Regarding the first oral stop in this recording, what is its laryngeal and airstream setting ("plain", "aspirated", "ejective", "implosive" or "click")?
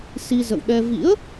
implosive